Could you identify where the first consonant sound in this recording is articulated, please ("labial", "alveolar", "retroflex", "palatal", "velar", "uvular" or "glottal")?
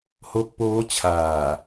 glottal